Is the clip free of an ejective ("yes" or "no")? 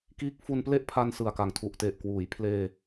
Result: yes